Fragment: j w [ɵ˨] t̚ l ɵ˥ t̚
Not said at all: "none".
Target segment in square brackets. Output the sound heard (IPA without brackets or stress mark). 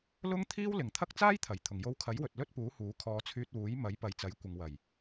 ɵ˨